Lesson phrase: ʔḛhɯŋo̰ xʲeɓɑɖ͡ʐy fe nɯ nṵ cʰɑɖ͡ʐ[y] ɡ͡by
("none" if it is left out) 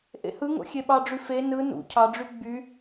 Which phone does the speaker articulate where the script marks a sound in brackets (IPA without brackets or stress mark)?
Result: y